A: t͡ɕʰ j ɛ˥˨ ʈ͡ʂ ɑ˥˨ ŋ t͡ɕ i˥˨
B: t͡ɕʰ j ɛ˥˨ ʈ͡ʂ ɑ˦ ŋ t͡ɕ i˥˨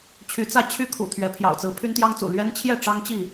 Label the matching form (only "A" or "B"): B